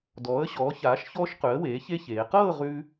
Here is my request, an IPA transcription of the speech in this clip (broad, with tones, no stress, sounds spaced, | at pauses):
d ɔː˩˧ ə̯ ɕ ɔː˩˧ ç aː˩˧ ʃ ç ɔː˧ ʃ q ʉ˩˧ ə̯ w eː˩˧ ç e˧ ç eː˩˧ q ɤː˥˧ ʁ ʉ˧